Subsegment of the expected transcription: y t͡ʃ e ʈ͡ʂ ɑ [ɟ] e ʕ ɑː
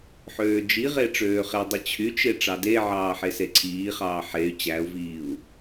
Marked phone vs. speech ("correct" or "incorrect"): incorrect